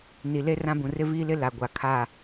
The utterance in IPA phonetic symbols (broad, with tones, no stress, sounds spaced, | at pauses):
n i˨ l e˦ r ã˦ b ũ˨ r ɪ˦ v iː˦ l ɪ˦ l a˨ ɡʷ a˨ kʰ a˦˨